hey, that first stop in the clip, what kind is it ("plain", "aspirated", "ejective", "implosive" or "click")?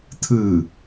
aspirated